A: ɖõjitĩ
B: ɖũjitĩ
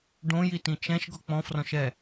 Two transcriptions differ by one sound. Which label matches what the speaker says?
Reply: A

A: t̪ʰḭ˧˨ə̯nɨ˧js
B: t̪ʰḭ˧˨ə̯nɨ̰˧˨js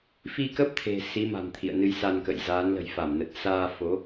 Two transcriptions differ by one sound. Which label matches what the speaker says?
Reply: A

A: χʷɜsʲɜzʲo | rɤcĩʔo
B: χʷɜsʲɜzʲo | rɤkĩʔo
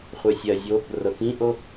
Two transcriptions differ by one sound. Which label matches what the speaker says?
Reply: B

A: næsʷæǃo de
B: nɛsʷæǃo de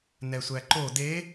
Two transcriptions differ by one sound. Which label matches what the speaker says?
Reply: B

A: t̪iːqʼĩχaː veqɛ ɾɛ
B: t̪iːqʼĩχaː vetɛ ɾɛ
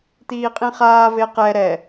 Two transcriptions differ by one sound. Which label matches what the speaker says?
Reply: A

